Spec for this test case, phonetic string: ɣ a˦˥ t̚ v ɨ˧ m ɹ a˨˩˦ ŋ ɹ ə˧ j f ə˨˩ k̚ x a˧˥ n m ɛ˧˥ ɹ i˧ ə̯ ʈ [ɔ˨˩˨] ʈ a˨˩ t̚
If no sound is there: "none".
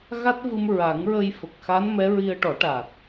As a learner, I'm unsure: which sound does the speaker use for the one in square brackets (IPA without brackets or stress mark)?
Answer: ɔ˨˩˦